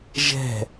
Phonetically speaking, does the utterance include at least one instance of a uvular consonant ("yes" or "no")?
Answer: no